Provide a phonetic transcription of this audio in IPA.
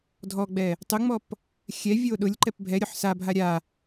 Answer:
dʱ ɔ ɡ͡b ɛ | tˤ ʊ ŋ͡m ɔ p | xʲ ɛ vʲ o ɗ ʊ lʲ ǃ ɛ p bʱ ɛ ɾʲ o ħ s a bʱ a ɾʲ a

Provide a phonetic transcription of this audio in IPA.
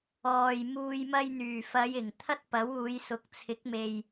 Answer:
ɔː˨ j m uː˧ j m ɐ˧ j n̪ yː˨˩ f ɐ˨˧ j ɪ˨˩ ŋ t̪ʰ ɐ˥ t̚ p ɐ˨˥ w uː˨˧ j s ʊ˨ k̚ t͡sʰ ɪ˨˥ k̚ m e˨ j

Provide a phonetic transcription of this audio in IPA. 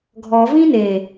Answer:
ɡʱ ɔ v ĩ n e

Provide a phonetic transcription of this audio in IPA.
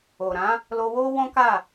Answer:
o˨ ɾ ã˨˦ | l o˧ w o˦ w ɔ̃˦ k a˦˨

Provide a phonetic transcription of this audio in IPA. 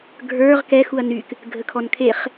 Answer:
ɡʱ ə˞ ʁ k ɛ x u ɐ̯ n y k | ɡʱ ə kʰ ɔ n kʰ e χ

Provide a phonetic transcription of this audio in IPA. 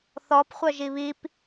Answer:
θ ɔ p χʷ œ ʒ i β i p

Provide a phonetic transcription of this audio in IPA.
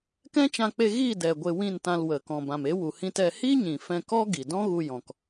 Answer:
k ɛ̃˦ t͡ʃ ã˧ k͡p e˧ ɣ i˦˨ d ɛ˨ ɡʷ e˧ w ĩ˦˨ n t ã˧ l w ə˨ k ɔ̃˨ b ã˨ m e˨˦ w u˨ h ĩ˧ t ɛ˧ h i˦ ɲ ĩ˨ f ɛ̃˧ k ɔ˦ ɡ i˨ d ɔ̃˦ ɣ u˧ j ɔ̃˨ k

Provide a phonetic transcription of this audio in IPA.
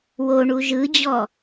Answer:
w o ɳ u ʒ ɯ d͡ʑ ɔ

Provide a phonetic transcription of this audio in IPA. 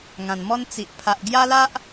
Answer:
ŋ ã˨˩ n m ɔ˦ n t͡s i˨ ʔ pʰ a˨ ʔ ɡ j a˦ l a˦ ʔ

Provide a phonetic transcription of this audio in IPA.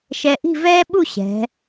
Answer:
ʃ ɛ˧ ʔ i̤˥˧ v ɛː˥ ɓ u˥˧ ɕ ɛ̤˩˧

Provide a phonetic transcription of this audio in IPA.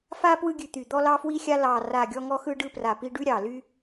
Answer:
f a˧ p w ɯ˧ ɡʲ ʉ˨˩ t̪ y˨˩ d̪ ɔ˧ l ɑ˧ f w i˧ xʲ a˧ l ɑ˨˩ r a˨˩ ɡʲ ɔ˧ ŋ ɔ˧ x ɯ˧ ɖ ɯ˧ p r a˨˩ p i˧ ɖ ʉ˧ ɾʲ ɑ˨˩ l y˧

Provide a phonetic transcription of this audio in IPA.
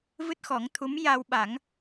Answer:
v ɨ˦˥ t̚ x ɔ˨˩˦ ŋ t̪ʰ u˧˥ m j a˧ w ɓ a˨˩˦ ŋ

